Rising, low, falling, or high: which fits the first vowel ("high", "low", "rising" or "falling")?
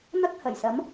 high